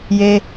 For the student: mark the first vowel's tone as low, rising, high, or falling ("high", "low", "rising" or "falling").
high